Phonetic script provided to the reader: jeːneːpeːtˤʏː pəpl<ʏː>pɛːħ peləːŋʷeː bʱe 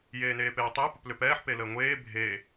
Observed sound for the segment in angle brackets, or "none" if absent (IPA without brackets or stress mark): ʏ